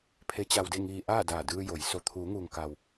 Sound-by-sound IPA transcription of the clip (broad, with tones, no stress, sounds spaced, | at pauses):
pʰ e˧˥ t͡ɕ a˧ w d e˥˨ ŋ iː˧ ʔ aː˥˨ d aː˧˩ d ɯː˧ j o˩˧ j s o˧ t̪ʰ uː˩˧ ŋ uː˩ ŋ k a˩ w